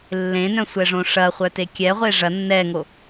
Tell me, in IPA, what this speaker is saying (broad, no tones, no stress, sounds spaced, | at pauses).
lː ẽ n œ̃ sʷ ɛ ʐ õ ʂ ɐ χʷ œ t e kʲ ɛ ʁʷ e ʐ ɐ nː ɛ ŋ o